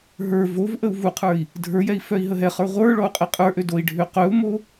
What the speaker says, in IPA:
ɦ ə˞ v o v ʔ ə u̯ v u qʰ ə˞ i̯ | dʱ ə˞ j ɛ i̯ f œ i̯ ɦ ə ɦ ɛ χ ə˞ ʁʷ ə˞ ɭ ɔ u̯ qʼ ɛ qʼ ə˞ ʔ ø d o i̯ ɖʱ ø q œ u̯ m o

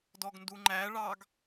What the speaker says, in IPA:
d ɔ ɡ n d u ŋ͡ǃ æ ɭ ɑ ɡ

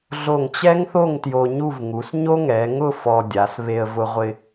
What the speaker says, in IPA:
ɮ o˧˩ ŋ t͡ɕ ɛ˥ ŋ θ o˥˧ ŋ t j o˧ ɲ u˥˧ v ŋ u˩˧ s ɲ o˥ ŋ ɛ˩˧ ŋ ʊ˥˧ f ɔ˧ dʲ a˩˧ s β e˧ ə̯ v ʊ˧ ʁʷ ɪ˧

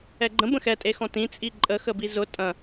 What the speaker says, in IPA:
ɛ ɡ͡ǃ ə̃ b ə̃ x ɛ tʼ e x ɔ̃ t ĩ t͡sʼ i ǃʼ ə x ə b i z ʊ tʼ ɐ̃

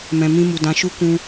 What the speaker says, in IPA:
m ɛ̃˨ m ĩ˧ m u˨ d ã˨ ʃ u˧ k ũ˧

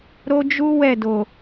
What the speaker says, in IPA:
ɾ o˦ d͡ʒ u˦ w ɛ˦˨ d o˨

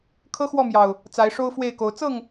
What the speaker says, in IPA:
kʰ ɤ˦ x w ɔ˥˨ m j ɑ˨˩ ʊ̯ | t͡s a˨˦ ɪ̯ ʂ o˦ ʊ̯ f w e˥˨ ɪ̯ k o˨˦ ʊ̯ t͡s ɤ˥˨ ŋ

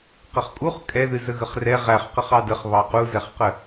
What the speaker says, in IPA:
q ə χ kʼ u χ kʼ ɛ ð ɨ z ə ɣ ə χ r ɛ ʁ æ χ q ə χ ɑ d ə χ β ɑ q u z ɛ χ q ə

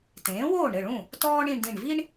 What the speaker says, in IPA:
t ẽː˩˥ w oː˥˩ ɳ ɾ ɘ˥˩ ɭ ũ˥˩ | t ɔː˥ ɳ ĩ˧ ɳ d ĩ˧˩ ɳ v i˥ ɳ

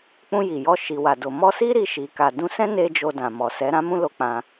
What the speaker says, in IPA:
k͡p ũ˧ j i˨ j ɔ˧ ʃ i˨ w a˨ d o˨ m ɔ˧ s i˦ ɾ i˧ ʃ i˨ k a˨ d ũ˧ s ɛ̃˦ n e˦ d͡ʒ o˧ d ã˨ m ɔ˨ s ɛ˨˦ ɾ ã˦ m ũ˦ l o˧ k͡p ã˧

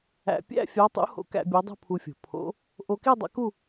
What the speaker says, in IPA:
æ̰˧ pʲ æ̰˥˧ fʲ ɑ˧˥ tˤ ṵ˧˥ h o̰˧˥ k æ̰˧ bʲ o˧˥ dˤ ṳ˥˧ pʰ u˧ fʲ o̤˧˩˧ pʰ o̰˧˥ | ʔ o˧ k i˥˧ dˤ ɑ̰˧˥ k u˥˧

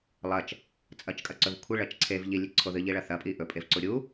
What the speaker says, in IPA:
lˠ ɐ t͡ʃ | t͡sʼ ɐ t͡ʃ kʼ ɐ ǀ ɵ v kʷʰ i ɭ ɐ t͡ʃ ǀʰ e v ʎ i lʲ e ǀʰ o ð ɨ ʎ i ɭ ɐ θ ɐ pʼ i ʔ ɵ pʼ e v ǀ u ɾʲ u

